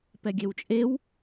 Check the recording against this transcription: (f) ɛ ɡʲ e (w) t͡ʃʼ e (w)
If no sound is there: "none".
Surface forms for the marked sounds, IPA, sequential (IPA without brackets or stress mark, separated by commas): p, w, w